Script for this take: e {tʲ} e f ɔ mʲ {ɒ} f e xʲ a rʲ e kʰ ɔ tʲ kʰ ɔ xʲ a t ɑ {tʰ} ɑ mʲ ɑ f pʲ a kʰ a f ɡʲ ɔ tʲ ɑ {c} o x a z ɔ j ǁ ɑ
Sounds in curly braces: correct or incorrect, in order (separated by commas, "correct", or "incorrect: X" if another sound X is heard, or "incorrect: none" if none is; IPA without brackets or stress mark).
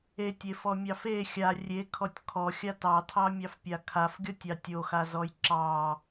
correct, incorrect: ɑ, correct, incorrect: tʲ